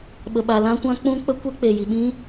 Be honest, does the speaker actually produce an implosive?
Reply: yes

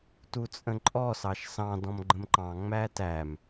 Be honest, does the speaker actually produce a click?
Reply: yes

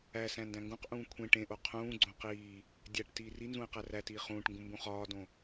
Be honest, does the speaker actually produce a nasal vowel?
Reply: yes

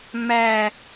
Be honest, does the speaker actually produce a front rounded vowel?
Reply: no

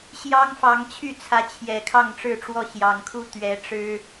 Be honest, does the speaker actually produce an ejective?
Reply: no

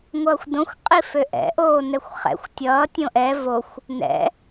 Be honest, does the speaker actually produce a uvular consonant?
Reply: yes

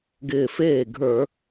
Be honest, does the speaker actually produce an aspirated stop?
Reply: no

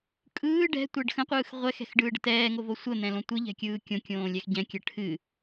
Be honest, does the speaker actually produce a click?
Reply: no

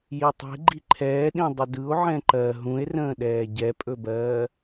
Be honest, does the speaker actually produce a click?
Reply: yes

